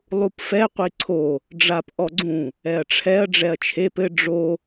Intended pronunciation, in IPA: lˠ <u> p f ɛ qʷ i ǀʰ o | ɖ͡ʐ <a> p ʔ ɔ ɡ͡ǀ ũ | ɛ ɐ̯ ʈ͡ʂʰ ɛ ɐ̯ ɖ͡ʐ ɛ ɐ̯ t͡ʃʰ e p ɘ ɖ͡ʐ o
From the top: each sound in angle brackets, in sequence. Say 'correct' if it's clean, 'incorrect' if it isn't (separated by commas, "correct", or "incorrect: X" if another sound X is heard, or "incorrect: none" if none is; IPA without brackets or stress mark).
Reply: correct, correct